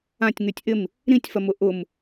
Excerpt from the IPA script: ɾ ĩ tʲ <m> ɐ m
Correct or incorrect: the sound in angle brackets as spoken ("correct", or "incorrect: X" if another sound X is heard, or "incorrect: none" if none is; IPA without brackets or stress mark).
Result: incorrect: f